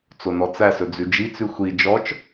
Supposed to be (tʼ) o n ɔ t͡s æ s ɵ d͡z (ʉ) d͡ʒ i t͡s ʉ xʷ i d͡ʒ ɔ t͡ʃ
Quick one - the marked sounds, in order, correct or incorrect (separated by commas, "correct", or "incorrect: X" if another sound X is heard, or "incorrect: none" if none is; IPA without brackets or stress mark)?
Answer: incorrect: t͡s, correct